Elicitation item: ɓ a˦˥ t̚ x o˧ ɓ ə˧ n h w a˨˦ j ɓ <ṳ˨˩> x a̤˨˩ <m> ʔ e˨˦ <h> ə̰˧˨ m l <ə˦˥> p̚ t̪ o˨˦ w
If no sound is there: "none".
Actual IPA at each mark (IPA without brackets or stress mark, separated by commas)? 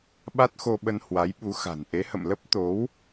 u˨˦, n, h, ə˦˥